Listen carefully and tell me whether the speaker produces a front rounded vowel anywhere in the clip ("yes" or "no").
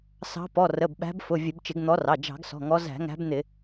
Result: no